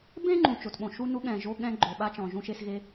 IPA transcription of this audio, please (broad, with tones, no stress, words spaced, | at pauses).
bẽ˥ ŋ͡ǃũ˩ t͡ʃo˩tɓõ˩ ʃu˥ nu˥ɠɛ̃˩ ʒo˥ɠɛ̃˥ ɡ͡ǃo˩ɓa˥t͡ʃɔ̃˩ ʒũ˥ʃe˥sɣe˥